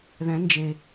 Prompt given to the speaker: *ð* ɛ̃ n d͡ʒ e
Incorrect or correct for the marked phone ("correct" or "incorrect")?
correct